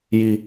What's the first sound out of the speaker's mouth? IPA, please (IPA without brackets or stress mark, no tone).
j